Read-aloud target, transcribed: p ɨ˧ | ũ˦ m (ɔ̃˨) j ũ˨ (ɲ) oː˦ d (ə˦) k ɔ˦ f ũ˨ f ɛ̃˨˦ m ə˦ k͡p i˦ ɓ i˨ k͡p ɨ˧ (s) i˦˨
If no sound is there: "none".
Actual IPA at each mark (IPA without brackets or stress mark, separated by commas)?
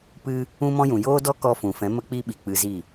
ɔ̃˦, j, ɔ˦, z